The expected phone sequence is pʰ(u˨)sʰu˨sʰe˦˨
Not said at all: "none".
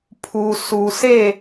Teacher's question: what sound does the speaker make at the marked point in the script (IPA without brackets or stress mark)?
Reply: u˨